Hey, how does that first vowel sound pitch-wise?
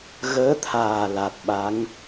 rising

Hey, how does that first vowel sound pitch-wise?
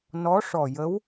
rising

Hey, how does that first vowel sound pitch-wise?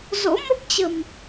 rising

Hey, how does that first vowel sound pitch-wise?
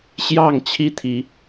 falling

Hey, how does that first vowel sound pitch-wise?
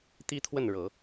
high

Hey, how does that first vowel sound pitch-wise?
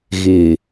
low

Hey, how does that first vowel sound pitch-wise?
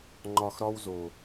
low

